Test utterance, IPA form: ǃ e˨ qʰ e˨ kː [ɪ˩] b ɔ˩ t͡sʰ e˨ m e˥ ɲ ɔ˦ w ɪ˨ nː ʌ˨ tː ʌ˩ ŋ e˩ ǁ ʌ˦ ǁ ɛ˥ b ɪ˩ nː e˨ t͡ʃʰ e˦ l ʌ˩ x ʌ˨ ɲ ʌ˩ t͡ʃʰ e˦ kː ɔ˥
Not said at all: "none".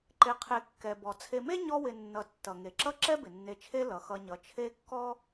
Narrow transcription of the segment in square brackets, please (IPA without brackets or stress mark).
ɛ˩